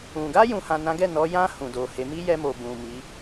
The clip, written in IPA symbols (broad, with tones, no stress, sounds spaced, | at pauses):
ũ˨ ɡ a˧ j ũ˨ h ã˨ n ã˨˦ ɡ ɛ˦˨ n ɔ˨˦ j ã˧ h ũ˨ d o˨ h e˨˦ m i˦ j ɛ˧ m o˨ b ũ˨ m i˨˦